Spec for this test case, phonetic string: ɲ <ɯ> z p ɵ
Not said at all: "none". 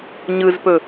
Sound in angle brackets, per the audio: ɯ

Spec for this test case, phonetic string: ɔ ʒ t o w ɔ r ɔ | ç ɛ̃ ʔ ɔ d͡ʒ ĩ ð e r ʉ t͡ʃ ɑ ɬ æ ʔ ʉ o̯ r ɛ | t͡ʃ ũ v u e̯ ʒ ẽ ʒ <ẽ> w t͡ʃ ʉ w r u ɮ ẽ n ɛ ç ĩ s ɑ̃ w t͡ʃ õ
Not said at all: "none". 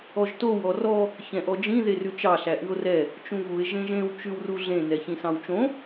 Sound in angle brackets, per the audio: ẽ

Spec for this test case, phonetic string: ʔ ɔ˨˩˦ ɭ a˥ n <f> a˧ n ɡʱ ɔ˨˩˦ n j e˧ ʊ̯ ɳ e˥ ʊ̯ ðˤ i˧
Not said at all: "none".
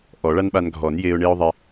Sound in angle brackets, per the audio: ɓ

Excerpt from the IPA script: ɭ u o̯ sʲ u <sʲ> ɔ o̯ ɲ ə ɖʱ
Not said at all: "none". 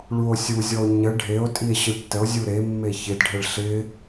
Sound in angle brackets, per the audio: zʲ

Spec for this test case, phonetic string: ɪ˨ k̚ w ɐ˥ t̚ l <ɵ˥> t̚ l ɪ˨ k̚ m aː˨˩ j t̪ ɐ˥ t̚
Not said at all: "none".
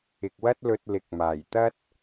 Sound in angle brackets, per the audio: ɵ˧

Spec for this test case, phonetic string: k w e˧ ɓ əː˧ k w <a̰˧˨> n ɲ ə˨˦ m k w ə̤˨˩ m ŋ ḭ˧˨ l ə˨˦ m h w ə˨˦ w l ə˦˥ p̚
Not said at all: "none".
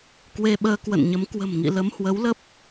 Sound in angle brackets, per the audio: ə̰˧˨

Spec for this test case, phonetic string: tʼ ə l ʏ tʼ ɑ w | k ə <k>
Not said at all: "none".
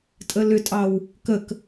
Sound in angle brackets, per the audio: k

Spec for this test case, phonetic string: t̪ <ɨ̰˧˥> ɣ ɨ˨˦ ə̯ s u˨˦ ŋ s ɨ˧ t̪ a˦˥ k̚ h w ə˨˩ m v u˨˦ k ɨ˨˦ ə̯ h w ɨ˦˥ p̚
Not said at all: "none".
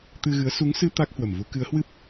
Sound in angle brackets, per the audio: ɨ˧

